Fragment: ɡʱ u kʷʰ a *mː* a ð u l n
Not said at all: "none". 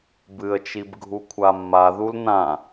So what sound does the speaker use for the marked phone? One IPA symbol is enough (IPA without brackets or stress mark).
mː